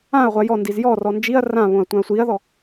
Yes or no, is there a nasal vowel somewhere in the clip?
yes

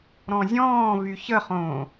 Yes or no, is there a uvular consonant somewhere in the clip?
yes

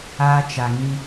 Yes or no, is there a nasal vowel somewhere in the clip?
yes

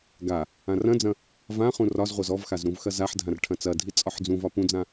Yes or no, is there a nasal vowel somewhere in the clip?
yes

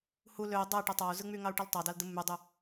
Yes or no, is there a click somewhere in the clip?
no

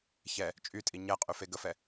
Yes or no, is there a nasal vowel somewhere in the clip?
no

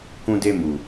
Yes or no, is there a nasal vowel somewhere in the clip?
yes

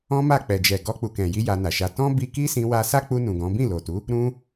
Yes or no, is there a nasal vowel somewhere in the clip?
yes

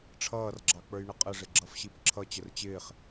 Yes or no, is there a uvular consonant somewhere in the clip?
yes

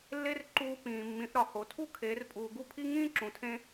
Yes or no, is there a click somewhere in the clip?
yes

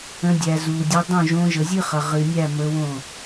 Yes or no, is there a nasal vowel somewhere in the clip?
yes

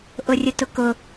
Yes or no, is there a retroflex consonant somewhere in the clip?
no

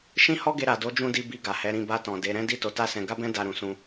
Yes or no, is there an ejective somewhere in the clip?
no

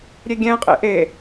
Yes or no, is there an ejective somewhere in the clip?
yes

